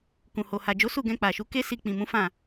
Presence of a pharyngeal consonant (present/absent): absent